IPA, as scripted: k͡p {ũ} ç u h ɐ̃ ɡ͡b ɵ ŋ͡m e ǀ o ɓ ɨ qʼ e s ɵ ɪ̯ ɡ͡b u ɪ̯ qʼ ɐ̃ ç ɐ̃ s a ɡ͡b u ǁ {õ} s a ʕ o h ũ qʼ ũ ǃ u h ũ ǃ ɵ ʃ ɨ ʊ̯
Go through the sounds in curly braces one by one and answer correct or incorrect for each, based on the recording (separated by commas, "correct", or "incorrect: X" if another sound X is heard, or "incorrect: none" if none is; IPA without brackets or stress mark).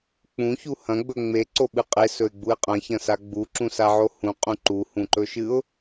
correct, incorrect: ũ